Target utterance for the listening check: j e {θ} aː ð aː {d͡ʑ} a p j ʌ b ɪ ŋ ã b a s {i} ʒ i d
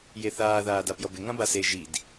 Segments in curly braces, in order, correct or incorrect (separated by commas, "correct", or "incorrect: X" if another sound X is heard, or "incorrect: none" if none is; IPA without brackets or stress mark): correct, incorrect: d, incorrect: e